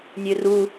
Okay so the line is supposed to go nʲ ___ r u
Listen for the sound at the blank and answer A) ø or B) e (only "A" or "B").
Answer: A